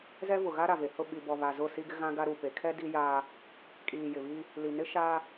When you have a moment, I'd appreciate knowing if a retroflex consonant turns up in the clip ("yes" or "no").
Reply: no